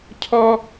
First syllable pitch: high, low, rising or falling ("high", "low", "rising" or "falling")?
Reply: high